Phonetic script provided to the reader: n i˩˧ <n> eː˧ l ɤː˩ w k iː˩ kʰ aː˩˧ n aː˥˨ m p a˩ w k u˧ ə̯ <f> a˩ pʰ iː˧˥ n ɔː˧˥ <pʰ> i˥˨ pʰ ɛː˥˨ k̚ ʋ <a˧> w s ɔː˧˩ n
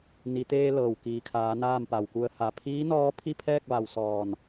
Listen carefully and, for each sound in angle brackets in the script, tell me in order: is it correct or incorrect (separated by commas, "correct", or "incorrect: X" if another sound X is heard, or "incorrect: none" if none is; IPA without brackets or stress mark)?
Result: incorrect: t̪, incorrect: h, correct, incorrect: a˩